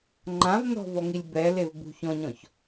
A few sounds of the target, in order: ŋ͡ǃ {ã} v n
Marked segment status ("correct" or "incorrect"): correct